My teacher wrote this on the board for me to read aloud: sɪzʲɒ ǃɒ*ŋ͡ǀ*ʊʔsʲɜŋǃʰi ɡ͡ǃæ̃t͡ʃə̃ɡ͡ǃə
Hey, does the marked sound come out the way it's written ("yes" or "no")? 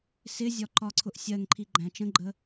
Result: no